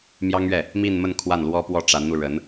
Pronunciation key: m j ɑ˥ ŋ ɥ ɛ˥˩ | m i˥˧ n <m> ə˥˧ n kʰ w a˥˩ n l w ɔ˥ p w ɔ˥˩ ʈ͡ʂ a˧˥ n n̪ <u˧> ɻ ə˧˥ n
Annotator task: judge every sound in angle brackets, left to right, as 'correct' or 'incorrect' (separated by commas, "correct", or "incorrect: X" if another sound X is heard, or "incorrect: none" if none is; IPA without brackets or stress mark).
correct, correct